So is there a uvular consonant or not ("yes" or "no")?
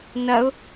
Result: no